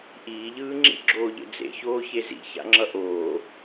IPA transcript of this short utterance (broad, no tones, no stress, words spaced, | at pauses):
ʔiːʎɯː ŋ͡ǁḭɡ͡ǁoːʎḛ d͡zḛçoː çezḭ ça̰ŋ͡ǁʌʔoː